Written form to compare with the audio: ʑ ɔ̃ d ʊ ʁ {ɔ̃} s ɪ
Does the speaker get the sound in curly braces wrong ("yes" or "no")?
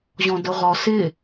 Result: yes